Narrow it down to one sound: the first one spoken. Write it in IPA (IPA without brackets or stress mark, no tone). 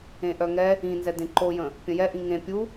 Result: ẽ